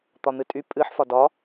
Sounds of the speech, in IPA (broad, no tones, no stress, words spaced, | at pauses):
t̪ɒn̪ɨtʼy pʼɨħ fɒdɒ